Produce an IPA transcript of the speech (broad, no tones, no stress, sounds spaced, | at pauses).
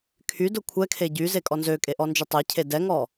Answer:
kʰ y d ʊ kʷʰ ɛ kʰ e ɟ y z e kʼ ɔ n z ø kʼ e ʔ ɔ n d͡ʒ ʊ tˤ e cʰ e d ɛ ŋ ɔ